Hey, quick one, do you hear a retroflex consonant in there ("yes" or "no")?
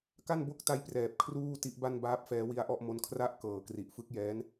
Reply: no